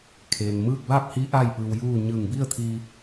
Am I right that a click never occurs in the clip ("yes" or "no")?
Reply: yes